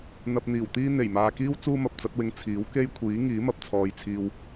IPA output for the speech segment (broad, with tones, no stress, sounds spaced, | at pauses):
n̪ ɐ˧ p̚ n̪ iː˨˩ w t̪ iː˥ n̪ e˨˩ j m aː˨ k iː˥ w t͡s uː˥ m ɐ˧ p̚ t͡s ɐ˨˥ t̚ w ɪ˧ ŋ t͡sʰ iː˨˥ w k e˥ j kʷʰ iː˨˥ ŋ iː˨˥ m ɐ˨ p̚ t͡sʰ ɔː˨ j t͡sʰ iː˧ w